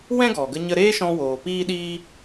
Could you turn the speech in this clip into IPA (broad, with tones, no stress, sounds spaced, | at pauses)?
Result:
w ɛ̃˦ ɡ ɔ˨ ɡ ə˧ ɲ ə˧ ɾ eː˦ ʃ ɔ̃˧ w oː˨ p iː˦ ɗ iː˦